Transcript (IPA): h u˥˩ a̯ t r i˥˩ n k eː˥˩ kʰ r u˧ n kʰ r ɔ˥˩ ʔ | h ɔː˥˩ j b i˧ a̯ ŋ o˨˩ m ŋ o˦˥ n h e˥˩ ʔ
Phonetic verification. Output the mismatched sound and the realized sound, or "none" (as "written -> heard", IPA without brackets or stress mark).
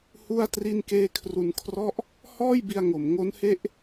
none